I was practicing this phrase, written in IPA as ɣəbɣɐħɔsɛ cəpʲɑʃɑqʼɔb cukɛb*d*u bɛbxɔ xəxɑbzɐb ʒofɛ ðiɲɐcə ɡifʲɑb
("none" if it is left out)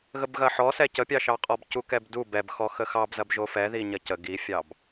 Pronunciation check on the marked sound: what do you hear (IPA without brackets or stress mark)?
d